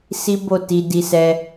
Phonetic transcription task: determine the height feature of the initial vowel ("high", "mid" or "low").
high